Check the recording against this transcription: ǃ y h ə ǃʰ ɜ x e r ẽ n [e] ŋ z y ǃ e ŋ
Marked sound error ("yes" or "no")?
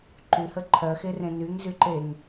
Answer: yes